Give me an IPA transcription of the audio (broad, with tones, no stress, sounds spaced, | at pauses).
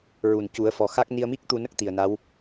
ɹ u˨˩ n c u˨˩˦ ə̯ f ɔ˨˩ x a˦˥ k̚ n i˧ ə̯ m i˦˥ k̚ t̪ u˧ n ə˦˥ k̚ t̪ i˨˩ ə̯ n a˧˥ w